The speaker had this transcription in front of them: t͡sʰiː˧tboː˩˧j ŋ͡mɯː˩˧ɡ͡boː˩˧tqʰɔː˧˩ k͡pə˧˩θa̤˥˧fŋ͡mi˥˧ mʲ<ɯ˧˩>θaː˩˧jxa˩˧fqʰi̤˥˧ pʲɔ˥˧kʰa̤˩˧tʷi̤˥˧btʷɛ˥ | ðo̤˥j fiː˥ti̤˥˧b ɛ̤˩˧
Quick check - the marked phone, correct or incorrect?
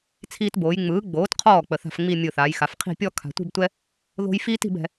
correct